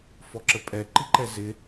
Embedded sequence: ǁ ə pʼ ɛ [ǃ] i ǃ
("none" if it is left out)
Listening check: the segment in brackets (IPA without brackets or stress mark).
ǃ